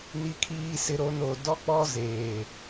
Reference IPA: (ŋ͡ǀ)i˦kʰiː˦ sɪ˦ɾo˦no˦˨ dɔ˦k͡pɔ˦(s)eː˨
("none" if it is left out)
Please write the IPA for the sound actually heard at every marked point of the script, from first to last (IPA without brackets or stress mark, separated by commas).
n, z